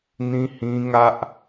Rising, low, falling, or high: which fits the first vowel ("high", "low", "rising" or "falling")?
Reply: high